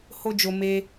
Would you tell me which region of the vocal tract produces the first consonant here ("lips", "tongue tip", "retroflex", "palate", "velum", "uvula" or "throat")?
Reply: throat